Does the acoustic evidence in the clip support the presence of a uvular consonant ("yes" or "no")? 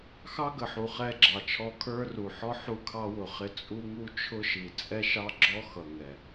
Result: yes